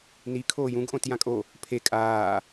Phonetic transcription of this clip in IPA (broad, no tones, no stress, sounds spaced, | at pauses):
n i kʰ oː j ũ ɡ ʔ õ t j ã kʼ o | pʰ e kʼ aː